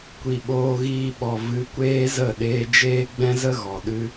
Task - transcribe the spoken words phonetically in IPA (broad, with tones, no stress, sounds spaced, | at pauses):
kʷ i˨ ɓ oː˧ ɣ iː˧ ɓ ɔ˨ v ɨ˨˦ kʷ eː˦ z ə˦˨ ɗ eː˧ d͡ʒ eː˦ ɡ͡b ɛ̃˦ z ə˦ ɣ ɔ˨ ɗ ɨ˧